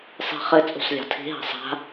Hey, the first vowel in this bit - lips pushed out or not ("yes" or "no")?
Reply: no